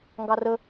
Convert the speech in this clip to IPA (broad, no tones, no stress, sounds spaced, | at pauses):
ŋ ɡ ɑ r ə